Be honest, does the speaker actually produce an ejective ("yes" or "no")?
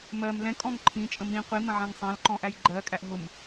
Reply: yes